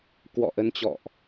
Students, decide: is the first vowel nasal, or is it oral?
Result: oral